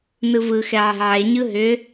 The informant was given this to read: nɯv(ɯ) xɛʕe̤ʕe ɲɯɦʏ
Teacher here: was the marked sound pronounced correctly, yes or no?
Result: yes